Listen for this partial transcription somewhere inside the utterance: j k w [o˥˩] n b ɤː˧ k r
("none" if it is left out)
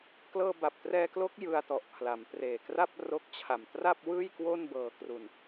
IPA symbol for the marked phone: o˥˩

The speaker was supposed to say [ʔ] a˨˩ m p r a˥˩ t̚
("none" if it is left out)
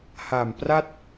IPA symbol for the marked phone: h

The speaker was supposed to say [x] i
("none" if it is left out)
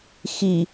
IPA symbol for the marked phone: x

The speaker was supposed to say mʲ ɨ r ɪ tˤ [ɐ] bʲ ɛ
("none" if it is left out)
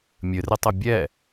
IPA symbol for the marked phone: ɐ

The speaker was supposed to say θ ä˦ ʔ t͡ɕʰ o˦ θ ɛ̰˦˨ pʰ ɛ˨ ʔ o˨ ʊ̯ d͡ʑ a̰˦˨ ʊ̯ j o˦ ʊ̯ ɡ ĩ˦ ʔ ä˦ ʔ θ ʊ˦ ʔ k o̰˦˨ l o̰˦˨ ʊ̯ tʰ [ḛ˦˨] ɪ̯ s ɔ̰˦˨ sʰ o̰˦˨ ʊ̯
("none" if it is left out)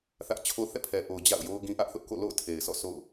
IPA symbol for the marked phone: e˨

